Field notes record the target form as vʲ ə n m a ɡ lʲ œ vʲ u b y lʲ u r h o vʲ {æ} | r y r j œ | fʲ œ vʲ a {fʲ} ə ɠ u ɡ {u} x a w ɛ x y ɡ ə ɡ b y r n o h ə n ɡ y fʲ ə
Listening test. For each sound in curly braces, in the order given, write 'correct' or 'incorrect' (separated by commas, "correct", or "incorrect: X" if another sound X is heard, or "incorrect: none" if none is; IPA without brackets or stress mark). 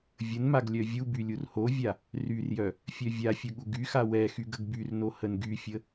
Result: incorrect: a, correct, incorrect: y